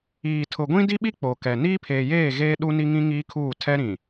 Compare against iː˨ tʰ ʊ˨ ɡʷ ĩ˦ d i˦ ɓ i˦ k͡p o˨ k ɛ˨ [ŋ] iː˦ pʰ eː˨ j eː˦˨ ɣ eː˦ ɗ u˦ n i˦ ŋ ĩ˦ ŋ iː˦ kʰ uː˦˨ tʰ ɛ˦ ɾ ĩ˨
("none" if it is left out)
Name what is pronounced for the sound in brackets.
n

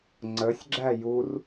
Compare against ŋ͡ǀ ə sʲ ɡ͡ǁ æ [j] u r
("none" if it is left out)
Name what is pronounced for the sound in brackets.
j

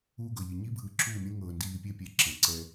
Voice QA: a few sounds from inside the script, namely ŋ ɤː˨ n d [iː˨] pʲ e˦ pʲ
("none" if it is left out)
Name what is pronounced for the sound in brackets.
iː˨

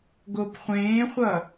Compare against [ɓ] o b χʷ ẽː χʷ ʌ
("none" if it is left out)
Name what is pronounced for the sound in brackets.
ɡ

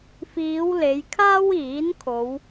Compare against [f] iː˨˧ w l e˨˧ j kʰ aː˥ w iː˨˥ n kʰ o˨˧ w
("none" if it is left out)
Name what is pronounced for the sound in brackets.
f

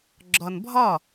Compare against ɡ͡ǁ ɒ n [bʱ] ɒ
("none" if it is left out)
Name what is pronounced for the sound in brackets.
bʱ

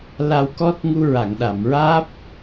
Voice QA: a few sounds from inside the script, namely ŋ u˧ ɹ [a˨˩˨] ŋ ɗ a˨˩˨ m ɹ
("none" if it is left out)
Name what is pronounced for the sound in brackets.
a˨˩˨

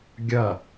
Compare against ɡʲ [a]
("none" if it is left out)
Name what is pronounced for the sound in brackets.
ɐ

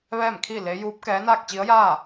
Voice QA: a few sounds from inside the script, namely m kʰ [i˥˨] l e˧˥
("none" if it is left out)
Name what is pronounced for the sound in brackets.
i˥˨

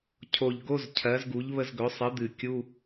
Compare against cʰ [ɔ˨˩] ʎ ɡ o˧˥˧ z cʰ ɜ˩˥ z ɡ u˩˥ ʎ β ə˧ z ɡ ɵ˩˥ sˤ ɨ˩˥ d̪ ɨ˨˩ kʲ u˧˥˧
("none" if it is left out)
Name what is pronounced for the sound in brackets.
o˨˩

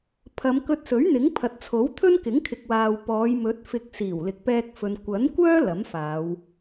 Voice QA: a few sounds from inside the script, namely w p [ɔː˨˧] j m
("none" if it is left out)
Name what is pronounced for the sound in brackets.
ɔː˨˧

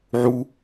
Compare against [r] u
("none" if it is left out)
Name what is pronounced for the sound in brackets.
ʕ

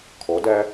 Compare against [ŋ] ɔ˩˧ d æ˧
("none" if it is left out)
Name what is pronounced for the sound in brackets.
kʰ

